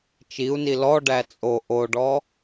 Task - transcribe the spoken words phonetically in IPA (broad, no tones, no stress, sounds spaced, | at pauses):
t͡ʃ i u̯ n i l ɔ ɖ æ t͡sʼ o ʔ o ɖ ɔ